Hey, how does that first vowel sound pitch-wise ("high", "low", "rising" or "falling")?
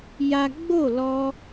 high